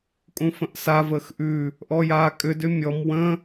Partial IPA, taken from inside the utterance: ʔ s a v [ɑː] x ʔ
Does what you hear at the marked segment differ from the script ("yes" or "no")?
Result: yes